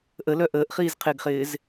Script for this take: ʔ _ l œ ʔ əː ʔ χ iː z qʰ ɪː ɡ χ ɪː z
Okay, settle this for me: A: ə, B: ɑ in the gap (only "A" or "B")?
A